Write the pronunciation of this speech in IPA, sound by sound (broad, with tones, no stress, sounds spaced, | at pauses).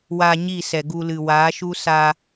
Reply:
w a˧ ɲ i˦˨ s ɛ˨ ɡ u˧ l ɨ˨ w aː˨˦ ʃ u˦ s a˧